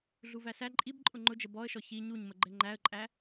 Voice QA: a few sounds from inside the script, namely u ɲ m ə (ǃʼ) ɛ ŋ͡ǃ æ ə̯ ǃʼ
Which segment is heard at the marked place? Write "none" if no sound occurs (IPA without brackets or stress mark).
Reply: ɡ͡ǃ